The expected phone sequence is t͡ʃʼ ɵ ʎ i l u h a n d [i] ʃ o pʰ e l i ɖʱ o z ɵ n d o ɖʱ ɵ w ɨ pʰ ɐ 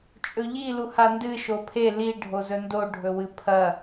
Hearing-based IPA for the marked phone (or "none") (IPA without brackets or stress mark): ɨ